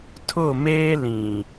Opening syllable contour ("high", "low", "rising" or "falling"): falling